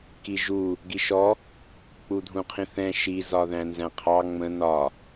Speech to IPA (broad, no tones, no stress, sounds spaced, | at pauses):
k i ʒ u | ɡ i ʃ ɔ | k͡p u dʱ ũ qʰ ĩ θ ɛ̃ ʃ i z ɒ ð æ̃ n z æ̃ qʰ ɑ ŋ͡m ə̃ n ɒ